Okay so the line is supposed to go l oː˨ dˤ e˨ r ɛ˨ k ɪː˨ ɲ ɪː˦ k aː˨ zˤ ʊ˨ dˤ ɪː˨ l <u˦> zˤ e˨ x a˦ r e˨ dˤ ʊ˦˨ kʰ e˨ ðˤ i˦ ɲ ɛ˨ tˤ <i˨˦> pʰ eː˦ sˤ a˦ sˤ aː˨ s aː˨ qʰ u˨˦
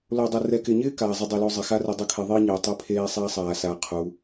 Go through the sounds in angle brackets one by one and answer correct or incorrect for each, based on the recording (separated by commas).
incorrect, incorrect